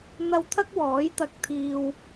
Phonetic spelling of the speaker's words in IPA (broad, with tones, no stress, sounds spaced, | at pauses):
n̪ ɐ˥ w t̪ʰ ɐ˥ k̚ w ɔː˨˥ j t̪ ɐ˧ k̚ t̪ʰ iː˧ w